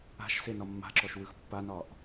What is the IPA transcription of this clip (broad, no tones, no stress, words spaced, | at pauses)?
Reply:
a̤ʃ senɒmːa̤ǁɔʃ wɯxpːanɒʔ